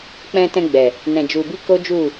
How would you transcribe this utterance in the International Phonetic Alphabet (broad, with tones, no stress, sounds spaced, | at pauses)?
k͡p ɛ̃˧ t ɛ̃˧ ɡ͡b ɛ˨ | n ɛ̃˨ d͡ʒ u˨ b i˧ k o˦ d͡ʒ u˦˨